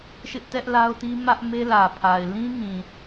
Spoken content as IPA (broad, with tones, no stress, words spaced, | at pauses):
ʃɪ˦ʔtɛ˦ʔ la˦ʊ̯ti˦ mä˦ʔme˦lä˨pʰa˨ɪ̯ lĩ˦ŋĩ˨